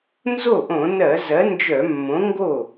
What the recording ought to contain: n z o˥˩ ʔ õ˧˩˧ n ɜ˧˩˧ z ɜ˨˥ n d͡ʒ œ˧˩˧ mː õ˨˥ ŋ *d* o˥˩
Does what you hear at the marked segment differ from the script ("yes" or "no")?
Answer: yes